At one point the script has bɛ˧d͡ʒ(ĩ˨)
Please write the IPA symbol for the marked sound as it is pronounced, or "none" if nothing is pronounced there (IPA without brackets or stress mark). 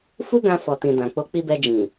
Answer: ĩ˨